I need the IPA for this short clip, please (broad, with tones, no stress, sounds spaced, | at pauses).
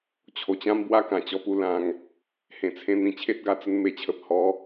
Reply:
t͡ɕʰ o˨˩ t͡ɕ ã˦ m b w a˦ k ã˨˩ t͡ɕ ɔ˧ p u˧ l ã˧ ŋ | h ẽ˨˩ t͡sʰ ẽ˧ n̪ ĩ˨˩ t͡ɕʰ e˦ t̚ ɡ a˧ t͡s ə˧ n m e˨˩ t͡ɕʰ ə˨ p̚ h ɔ˨˦